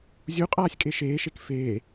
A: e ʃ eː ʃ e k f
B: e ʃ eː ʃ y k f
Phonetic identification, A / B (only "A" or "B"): A